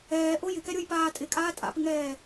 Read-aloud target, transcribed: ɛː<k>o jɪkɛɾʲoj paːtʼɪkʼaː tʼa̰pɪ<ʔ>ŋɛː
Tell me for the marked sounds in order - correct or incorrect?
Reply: incorrect, incorrect

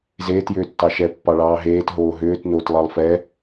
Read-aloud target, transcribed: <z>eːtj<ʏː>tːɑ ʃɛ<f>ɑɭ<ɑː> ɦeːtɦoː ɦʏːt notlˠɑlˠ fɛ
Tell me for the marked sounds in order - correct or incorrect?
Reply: correct, correct, incorrect, correct

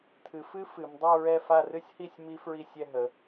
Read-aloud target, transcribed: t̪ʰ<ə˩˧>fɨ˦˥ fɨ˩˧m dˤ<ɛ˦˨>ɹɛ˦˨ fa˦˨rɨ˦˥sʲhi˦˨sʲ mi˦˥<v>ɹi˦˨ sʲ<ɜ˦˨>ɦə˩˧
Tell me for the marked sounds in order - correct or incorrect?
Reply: incorrect, correct, incorrect, incorrect

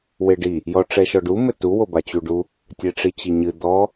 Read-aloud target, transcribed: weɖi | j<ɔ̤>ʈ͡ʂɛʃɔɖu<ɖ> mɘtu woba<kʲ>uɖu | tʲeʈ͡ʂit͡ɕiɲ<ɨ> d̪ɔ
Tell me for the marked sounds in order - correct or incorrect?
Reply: incorrect, incorrect, incorrect, correct

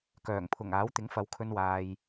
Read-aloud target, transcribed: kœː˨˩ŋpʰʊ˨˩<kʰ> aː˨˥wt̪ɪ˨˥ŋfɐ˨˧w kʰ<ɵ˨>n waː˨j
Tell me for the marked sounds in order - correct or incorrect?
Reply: incorrect, incorrect

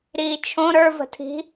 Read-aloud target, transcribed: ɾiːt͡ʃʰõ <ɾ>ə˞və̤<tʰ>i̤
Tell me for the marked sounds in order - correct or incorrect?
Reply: correct, correct

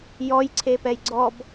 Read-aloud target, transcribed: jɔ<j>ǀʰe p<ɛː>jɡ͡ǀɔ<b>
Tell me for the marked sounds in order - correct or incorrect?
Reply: correct, incorrect, correct

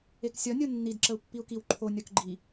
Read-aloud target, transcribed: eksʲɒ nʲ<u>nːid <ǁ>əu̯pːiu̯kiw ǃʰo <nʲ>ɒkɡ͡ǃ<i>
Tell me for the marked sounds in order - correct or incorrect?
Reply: incorrect, correct, correct, correct

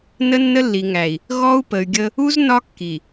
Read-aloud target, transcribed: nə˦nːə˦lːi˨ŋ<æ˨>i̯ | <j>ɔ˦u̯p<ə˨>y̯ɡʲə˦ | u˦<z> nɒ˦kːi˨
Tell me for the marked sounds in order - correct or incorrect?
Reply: correct, incorrect, correct, correct

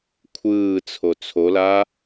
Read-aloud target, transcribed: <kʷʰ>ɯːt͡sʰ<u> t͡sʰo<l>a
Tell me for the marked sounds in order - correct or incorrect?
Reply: correct, incorrect, correct

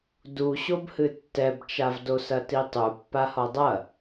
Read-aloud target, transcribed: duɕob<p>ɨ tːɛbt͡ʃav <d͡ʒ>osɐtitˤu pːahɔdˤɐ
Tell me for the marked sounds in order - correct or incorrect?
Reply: incorrect, incorrect

